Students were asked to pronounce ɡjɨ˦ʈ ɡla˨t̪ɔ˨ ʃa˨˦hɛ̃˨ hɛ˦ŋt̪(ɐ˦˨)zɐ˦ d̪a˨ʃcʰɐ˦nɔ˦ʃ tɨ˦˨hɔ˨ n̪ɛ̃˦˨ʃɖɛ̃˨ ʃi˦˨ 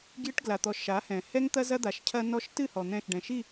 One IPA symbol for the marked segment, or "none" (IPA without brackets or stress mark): ɐ˦